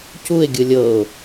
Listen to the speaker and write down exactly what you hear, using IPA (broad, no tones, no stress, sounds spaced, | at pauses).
c u ɪ̯ ɡʲ ɯ lʲ ɤ ʊ̯